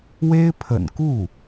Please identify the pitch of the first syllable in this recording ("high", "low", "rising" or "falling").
high